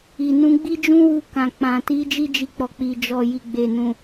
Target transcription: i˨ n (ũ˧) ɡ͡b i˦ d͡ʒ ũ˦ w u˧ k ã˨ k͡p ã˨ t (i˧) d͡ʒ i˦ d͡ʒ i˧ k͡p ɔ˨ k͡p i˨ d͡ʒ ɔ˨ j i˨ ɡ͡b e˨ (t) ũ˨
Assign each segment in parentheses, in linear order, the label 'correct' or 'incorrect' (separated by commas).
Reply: correct, incorrect, incorrect